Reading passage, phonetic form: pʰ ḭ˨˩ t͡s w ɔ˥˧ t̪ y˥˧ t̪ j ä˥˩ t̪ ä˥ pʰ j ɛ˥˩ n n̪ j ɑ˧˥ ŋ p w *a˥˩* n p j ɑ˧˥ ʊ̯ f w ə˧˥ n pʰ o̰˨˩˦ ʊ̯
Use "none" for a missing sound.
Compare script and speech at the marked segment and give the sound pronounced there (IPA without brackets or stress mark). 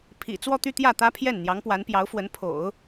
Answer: a˧˥